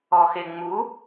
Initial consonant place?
velar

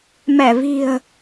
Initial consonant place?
labial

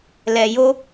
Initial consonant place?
alveolar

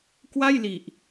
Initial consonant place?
velar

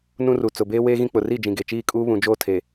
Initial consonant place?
alveolar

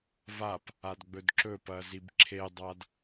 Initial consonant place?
labial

